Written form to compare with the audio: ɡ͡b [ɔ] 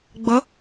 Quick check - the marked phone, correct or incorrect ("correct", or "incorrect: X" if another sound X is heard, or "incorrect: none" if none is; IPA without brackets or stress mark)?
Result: incorrect: ʌ